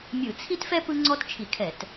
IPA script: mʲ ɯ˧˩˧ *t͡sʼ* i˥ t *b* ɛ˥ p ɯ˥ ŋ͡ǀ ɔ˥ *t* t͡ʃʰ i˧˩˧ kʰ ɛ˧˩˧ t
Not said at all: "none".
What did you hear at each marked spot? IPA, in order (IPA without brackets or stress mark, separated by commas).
t͡sʰ, f, t